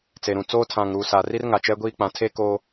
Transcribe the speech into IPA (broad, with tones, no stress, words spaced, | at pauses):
t͡se˨ɾũ˨t͡soː˦ tʰã˨ŋɾuː˨sa˨ ri˦rŋa˨t͡ʃɛ˦ɡʷiː˦ k͡pã˨˦tʰe˦ koː˦